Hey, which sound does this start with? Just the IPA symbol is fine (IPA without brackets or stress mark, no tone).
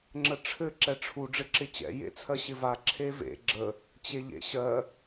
ŋ͡ǁ